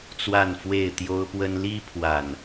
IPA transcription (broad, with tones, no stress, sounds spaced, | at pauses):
t͡s w a˥˨ n f w e˥˨ ɪ̯ t̪ j o˦ ʊ̯ p w ə˦ n l i˦ pʰ w a˨˩ n